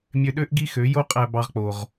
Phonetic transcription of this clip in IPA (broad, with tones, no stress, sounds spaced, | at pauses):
mʲ ø˧ ɗ ø˥ ʔ ɡ i˥ x ø˩˥ j o˥ qʼ æ˧ b ɑ˧ ʁ k͡p o˩ ʁ